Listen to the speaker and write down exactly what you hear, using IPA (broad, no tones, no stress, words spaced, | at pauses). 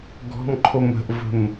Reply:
ɡɔ̤mǃʰom ə̤ʔvə̤m